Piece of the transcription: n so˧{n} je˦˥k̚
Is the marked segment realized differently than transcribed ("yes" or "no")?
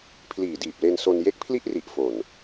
no